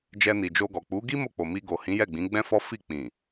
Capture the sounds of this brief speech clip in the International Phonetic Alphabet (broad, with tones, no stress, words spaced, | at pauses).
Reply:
d͡ʒɛ˧ni˨d͡ʒo˧ɡɔ˨ k͡pu˨˦ɡi˦ mo˦˨k͡po˨mi˧ ɡo˨hĩ˨˦jɛ˦˨ɡ͡bĩ˨˦ ɡ͡bɛ̃˦fɔ˦fi˦˨ k͡pĩ˨